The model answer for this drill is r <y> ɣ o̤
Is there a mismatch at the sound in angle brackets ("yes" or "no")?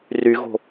no